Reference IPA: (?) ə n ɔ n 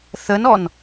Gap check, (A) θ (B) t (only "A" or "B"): A